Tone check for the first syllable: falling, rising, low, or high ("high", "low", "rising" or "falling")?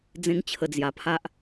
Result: high